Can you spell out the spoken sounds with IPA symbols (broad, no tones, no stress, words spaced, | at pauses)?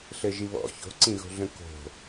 ɬɘʒiβɔ̰ ço̤ǀĩɣo̤ɮə̃ ko̤